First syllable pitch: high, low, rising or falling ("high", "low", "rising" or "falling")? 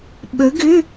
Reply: rising